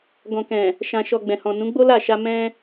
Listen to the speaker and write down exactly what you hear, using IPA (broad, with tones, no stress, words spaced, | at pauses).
ɡɔ̃˨kɛ̃˨ | ʃã˨ʃɔ˨ ɡ͡bɛ̃˨hɔ̃˨ nũ˨˦ɡ͡bo˦la˦˨ʃa˧ mɛ̃˧